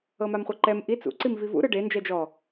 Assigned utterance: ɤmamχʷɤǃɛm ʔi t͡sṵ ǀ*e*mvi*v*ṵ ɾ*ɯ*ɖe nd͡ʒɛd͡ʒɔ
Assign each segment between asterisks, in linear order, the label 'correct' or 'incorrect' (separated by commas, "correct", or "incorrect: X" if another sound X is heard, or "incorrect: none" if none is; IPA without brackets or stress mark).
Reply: incorrect: i, correct, correct